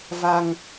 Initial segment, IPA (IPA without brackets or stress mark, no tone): v